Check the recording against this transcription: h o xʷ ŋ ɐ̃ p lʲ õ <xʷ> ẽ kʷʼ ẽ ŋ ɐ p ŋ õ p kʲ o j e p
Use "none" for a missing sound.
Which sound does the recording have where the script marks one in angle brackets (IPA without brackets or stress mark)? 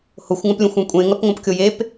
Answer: xʷ